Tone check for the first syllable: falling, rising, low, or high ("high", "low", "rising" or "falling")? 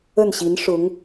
falling